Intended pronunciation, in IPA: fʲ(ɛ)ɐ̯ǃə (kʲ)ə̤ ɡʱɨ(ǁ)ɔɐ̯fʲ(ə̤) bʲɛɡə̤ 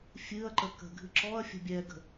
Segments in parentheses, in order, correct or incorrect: incorrect: ɨ, incorrect: k, correct, correct

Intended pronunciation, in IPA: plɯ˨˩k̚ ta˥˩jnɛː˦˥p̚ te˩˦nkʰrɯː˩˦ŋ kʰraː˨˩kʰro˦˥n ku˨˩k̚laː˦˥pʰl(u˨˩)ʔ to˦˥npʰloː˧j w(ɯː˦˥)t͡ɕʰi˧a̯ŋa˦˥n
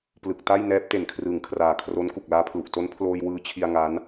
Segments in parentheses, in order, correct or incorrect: correct, correct

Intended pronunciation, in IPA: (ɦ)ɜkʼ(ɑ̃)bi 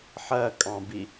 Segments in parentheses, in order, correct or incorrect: incorrect: ħ, correct

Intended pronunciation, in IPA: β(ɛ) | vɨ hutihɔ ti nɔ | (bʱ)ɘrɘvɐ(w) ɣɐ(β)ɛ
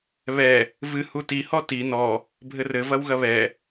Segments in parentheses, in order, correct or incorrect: correct, correct, correct, correct

